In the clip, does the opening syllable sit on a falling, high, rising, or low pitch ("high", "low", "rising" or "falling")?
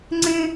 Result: high